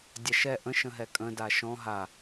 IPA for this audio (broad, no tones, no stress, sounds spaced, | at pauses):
dʲ a ʃ ɛ ʔ ə̃ ʃ ə̃ ɦ ɛ kʼ ə̃ d a ʃ ɔ̃ ɦ a